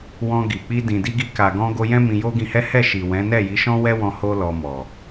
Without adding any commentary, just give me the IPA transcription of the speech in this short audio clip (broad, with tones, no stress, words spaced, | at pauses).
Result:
wɔ̃˧ɡi˨ k͡pi˧dĩ˨di˧ɡi˧ ka˨ɡɔ̃˧ ɡo˧jɛ̃˦ mĩ˧jo˦ɡĩ˧hɛ˦ hɛ˦˨ʃi˨ wɛ̃˨˦nɛ˦˨ji˨˦ʃɔ̃˦ wɛ˦wɔ̃˧ ho˦ lɔ˧mɔ˨